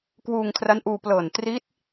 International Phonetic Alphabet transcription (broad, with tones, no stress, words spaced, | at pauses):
kwuː˧ŋkʰra˦˥nʔuː˧plɤː˨˩n tri˦˥t̚